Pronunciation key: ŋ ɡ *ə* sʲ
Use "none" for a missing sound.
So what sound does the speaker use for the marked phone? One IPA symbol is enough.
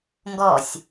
ɔ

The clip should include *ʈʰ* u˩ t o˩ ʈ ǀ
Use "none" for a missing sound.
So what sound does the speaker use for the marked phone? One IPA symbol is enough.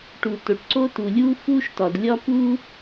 ʈ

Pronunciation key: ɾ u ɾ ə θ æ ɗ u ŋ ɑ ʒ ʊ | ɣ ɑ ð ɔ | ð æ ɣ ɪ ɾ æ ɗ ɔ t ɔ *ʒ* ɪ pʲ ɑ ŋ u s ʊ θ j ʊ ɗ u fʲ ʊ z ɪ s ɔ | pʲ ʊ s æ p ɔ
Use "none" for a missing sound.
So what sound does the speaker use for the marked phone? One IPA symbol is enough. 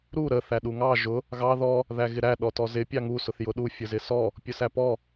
z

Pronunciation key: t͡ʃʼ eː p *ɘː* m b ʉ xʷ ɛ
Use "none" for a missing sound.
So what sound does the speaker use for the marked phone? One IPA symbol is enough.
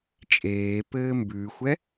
ɘː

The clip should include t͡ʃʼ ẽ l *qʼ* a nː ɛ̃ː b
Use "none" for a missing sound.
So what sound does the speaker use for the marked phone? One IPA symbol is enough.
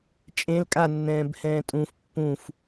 kʼ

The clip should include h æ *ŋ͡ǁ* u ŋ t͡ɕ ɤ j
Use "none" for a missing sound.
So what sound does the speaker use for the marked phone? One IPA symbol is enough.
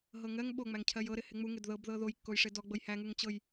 ŋ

